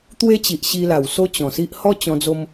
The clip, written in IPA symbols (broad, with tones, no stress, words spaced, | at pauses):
t̪we˦t͡ɕi˨ʔ ɕi˧la˨˩w so˦t͡ɕɔ̃˨˩si˦ʔ hɔ˦t͡ɕɔ̃˧d͡zo˧m